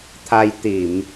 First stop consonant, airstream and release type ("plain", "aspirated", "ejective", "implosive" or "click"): aspirated